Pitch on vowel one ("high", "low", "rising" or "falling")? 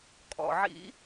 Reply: low